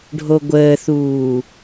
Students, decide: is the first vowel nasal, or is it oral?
oral